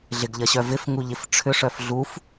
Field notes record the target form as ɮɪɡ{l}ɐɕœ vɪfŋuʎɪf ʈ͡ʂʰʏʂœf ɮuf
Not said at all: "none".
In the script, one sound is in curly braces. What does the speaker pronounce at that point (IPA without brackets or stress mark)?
ʎ